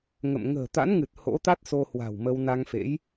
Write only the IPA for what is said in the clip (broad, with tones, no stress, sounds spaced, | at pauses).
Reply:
ŋ ə̰˧˨ m ŋ ə̤ː˨˩ t̪ a̰˧˥ n ŋ ɨ˨˩ t̚ h o̰˧˥ t̪ a˦˥ t̚ s o˧ h w a̤˨˩ w m ə˧ w n a˧ ŋ f ḛ˧˥ j